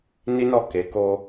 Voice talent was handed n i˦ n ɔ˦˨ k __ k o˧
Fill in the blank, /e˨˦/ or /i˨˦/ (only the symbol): e˨˦